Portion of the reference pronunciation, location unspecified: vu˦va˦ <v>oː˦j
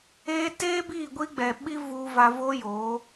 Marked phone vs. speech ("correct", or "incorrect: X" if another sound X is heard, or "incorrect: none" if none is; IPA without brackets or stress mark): correct